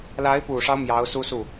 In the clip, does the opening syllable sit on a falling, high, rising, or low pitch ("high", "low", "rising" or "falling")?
rising